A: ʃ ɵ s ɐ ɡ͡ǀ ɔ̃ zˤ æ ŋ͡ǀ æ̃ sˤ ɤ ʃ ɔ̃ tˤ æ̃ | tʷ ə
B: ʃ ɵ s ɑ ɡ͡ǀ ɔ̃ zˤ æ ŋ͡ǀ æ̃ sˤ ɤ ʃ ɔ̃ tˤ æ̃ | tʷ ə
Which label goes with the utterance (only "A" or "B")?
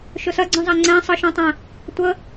A